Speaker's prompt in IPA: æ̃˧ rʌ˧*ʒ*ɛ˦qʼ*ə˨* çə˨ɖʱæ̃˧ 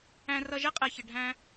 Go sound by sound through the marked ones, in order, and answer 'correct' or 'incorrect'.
correct, incorrect

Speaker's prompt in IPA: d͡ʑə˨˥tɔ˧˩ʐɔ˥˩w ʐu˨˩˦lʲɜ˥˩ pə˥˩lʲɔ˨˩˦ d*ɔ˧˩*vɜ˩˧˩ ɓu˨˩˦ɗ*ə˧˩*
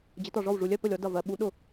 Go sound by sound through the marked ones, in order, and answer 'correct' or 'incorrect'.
incorrect, incorrect

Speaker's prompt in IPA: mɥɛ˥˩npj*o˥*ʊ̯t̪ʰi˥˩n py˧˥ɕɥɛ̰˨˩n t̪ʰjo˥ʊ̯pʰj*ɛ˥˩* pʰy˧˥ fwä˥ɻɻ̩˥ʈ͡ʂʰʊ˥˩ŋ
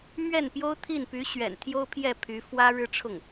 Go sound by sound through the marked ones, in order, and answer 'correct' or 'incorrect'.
correct, correct

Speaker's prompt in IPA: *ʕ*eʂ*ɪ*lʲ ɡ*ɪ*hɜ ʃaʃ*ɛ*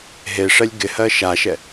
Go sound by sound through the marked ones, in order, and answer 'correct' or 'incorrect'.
incorrect, incorrect, correct, correct

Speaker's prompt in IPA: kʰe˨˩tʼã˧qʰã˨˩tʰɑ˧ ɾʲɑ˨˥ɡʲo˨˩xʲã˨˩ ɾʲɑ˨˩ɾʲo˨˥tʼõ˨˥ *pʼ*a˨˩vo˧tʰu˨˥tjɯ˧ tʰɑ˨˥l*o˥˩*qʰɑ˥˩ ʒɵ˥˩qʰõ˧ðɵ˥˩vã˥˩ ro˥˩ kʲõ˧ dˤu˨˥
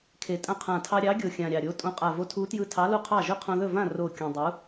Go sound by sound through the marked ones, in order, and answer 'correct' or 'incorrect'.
incorrect, correct

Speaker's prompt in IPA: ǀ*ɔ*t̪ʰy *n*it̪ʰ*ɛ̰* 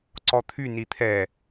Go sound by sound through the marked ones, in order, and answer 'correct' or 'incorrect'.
correct, correct, incorrect

